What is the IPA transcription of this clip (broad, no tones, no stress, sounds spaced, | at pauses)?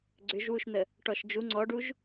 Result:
ɡ͡ǀ ʏ ʒ w u ʃ n̪ ə | ʈ ɔ ʃ d͡ʒ u ŋ͡ǀ ɔ ɖ u ʒ